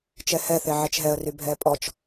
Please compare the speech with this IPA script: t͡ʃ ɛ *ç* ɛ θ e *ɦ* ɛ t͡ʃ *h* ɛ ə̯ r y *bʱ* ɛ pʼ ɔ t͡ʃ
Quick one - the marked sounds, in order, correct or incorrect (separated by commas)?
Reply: incorrect, incorrect, incorrect, correct